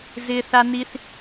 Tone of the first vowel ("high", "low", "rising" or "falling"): high